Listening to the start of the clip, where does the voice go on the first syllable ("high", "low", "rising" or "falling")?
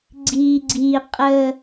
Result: low